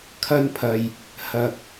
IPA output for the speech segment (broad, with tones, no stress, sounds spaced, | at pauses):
kʰ ɐ˧ n pʰ ɐ˨ j | h ɐ˨ k̚